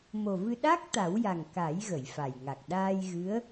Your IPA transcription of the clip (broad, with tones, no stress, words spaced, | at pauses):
mo˨˩vɨ˧ ɗa˦˥k̚ t̪a˨˩˦wja˨˩ŋ ka˨˩˦j ɣə˨˩˨jfa˨˩jŋa˨˩k̚ ɗaː˧jɣɨ˧˥ə̯